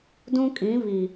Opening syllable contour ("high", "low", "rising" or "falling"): high